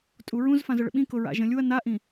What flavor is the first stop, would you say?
ejective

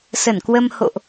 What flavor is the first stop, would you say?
plain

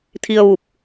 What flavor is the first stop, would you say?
aspirated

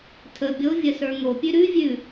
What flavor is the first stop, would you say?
aspirated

